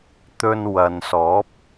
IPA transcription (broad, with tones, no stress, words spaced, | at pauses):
t̪ɵ˧n wɐ˨nsɔː˨˥p̚